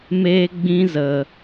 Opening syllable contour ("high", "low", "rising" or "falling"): high